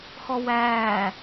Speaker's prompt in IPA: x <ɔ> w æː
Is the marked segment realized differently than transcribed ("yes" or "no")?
no